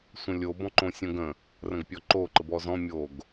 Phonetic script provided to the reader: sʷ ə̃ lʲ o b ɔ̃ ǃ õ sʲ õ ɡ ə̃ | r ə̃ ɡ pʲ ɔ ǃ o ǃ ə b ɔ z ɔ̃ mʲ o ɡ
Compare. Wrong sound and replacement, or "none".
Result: none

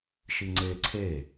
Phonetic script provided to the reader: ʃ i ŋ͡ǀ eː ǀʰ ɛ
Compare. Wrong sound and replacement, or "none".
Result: ɛ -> e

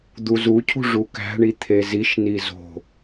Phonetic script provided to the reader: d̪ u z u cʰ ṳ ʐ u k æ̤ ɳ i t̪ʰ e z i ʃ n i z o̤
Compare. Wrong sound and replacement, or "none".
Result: none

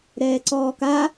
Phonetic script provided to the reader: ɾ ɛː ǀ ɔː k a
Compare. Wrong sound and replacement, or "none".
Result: none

